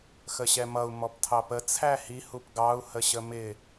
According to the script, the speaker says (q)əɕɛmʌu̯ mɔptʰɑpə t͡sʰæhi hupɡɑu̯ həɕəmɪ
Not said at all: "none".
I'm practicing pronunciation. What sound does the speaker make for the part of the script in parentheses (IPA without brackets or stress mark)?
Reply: x